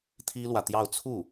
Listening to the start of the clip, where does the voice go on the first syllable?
high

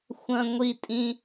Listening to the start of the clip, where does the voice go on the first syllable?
high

